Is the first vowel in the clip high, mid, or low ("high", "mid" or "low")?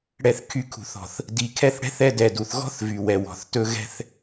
mid